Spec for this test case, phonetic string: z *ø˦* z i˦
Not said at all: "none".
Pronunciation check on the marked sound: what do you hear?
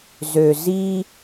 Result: ø˨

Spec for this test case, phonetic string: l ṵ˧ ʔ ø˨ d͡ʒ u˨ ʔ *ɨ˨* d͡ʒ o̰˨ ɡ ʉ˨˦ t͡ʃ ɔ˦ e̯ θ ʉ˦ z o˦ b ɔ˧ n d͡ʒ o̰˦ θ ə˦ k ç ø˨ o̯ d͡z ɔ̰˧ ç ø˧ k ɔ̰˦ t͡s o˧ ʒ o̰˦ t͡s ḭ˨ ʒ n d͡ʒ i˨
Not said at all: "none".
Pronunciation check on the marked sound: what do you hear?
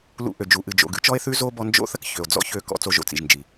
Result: ɨ˨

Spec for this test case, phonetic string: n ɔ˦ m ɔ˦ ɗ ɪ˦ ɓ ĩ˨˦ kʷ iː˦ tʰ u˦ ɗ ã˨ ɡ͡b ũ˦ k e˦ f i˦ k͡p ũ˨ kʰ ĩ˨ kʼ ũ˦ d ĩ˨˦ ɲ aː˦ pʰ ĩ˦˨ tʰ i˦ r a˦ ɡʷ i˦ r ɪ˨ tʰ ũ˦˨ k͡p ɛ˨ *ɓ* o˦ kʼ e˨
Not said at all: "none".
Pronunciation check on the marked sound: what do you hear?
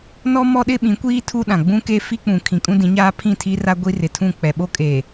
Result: ɓ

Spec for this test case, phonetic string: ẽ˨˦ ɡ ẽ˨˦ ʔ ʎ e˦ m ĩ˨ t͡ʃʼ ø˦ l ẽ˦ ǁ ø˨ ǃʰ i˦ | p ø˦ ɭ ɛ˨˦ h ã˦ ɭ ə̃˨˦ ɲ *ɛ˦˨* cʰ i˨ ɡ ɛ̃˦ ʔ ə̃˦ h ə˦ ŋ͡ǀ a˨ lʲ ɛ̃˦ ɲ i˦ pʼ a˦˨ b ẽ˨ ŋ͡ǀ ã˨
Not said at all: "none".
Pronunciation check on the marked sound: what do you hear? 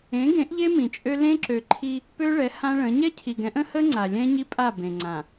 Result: ɛ˦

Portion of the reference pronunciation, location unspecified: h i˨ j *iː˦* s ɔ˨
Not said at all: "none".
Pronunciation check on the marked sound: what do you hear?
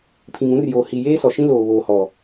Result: eː˦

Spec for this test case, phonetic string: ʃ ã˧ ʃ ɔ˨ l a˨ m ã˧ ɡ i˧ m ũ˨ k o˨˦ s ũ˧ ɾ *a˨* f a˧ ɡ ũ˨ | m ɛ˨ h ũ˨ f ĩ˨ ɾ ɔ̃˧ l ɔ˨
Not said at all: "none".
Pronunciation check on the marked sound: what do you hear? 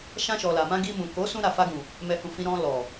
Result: a˨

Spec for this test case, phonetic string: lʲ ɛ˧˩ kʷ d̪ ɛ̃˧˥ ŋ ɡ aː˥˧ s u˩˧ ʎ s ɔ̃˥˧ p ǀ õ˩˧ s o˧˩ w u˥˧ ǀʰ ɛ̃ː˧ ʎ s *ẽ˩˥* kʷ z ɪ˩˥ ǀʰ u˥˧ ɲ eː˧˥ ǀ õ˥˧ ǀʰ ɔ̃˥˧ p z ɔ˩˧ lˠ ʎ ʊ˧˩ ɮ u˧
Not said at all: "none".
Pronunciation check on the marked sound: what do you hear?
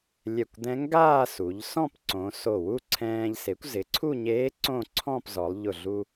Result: e˩˥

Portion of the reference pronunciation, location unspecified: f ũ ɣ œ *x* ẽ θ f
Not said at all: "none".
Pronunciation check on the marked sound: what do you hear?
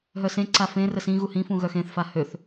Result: x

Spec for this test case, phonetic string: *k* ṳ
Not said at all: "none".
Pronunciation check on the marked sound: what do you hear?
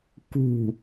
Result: k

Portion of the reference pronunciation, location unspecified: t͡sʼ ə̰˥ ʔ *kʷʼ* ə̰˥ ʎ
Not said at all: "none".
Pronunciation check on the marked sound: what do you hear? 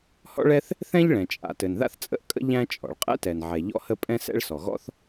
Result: kʼ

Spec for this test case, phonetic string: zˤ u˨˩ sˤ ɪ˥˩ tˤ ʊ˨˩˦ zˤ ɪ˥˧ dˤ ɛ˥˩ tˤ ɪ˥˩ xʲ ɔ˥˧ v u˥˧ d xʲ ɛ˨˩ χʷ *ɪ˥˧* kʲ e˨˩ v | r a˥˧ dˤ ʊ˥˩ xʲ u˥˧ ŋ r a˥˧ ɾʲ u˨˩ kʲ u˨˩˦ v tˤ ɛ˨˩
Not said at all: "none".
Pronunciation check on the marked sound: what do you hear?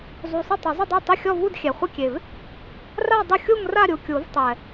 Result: ɪ˥˧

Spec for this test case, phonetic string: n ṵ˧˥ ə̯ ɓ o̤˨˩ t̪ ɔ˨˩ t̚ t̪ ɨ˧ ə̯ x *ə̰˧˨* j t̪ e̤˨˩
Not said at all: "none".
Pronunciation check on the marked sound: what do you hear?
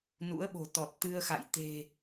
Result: a̰˧˨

